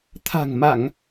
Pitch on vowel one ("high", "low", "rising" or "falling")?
low